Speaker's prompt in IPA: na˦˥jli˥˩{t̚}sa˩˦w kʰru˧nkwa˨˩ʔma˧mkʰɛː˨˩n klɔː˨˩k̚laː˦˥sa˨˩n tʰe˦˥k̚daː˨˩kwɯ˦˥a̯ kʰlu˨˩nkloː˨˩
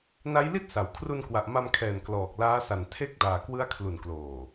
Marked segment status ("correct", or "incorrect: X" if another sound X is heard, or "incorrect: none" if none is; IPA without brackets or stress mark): correct